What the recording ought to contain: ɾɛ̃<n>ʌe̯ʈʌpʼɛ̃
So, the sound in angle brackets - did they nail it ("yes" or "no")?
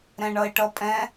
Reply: no